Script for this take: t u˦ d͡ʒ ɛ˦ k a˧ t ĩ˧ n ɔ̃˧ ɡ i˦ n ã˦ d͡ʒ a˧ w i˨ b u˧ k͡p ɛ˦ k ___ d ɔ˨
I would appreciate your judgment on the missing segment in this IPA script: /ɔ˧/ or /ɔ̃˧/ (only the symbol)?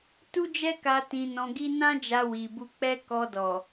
ɔ˧